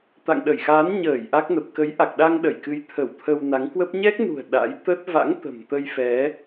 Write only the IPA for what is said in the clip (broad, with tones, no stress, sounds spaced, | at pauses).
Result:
t̪ a̰˧˨ ŋ ɗ ə˧˩ j x aː˨˦ n ɲ əː˧˩ j ʔ a˦˥ k̚ n ə˨˩ p̚ k ə˨˦ j ʔ a˨˩ k̚ ɗ a˧ ŋ ɗ ə˧˩ j k ɨ˨˦ j t̪ʰ ə˧˩ w t̪ʰ ə˧ w n a˨˦ ŋ k w ə˦˥ p̚ ɲ ɛ˦˥ k̚ n ṳ˨˩ ə̯ ɗ a̰˧˥ j t̪ ə˦˥ t̚ v a̰˧˥ ŋ t̪ ə̤˨˩ m t̪ ə˧ j f ɛ˨˦